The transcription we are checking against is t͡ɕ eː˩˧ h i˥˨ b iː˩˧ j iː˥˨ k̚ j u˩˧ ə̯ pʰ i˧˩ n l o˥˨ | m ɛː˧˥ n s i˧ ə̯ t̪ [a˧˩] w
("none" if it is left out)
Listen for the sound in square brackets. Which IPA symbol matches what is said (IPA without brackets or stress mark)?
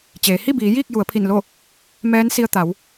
a˩˧